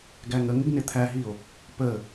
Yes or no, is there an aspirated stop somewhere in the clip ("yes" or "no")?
yes